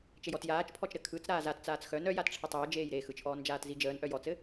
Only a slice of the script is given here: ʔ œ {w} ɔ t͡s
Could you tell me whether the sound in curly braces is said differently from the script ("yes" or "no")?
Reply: yes